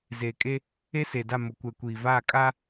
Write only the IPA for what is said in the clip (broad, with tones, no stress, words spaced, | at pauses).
zeː˨kʼe˦ | e˦se˨da˦˨ mʊ˨kʷɛ˨kʷiː˨vaː˦˨ kʼaː˦